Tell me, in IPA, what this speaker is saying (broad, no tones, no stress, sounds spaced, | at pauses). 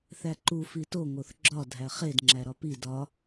θ æ ǃ u f i t o ŋ o θ ɡ͡ǁ ɒ dʱ æ χ e d ŋ͡ǁ æ ɾ ɒ p i d ɒ